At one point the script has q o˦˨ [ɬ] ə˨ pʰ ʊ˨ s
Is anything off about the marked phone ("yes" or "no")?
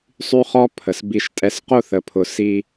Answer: yes